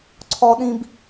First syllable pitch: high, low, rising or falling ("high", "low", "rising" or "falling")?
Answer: high